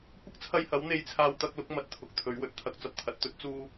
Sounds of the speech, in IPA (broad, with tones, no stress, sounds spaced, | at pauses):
kʷ ɐ˥ k̚ t͡sʰ ɐ˧ j h ɐ˨˥ w n̪ e˧ j t͡sʰ aː˧ w t̪ ɐ˧ k̚ l ʊ˨˥ k̚ m ɐ˨˥ t̚ t̪ʰ ʊ˨ k̚ t̪ʰ ɵ˨˥ ɥ w ɵ˨ t̚ t̪ʰ ɐ˧ k̚ t͡s ɐ˨ p̚ t̪ʰ ɐ˨ t̚ t̪ ɵ˥ t̚ t͡s uː˥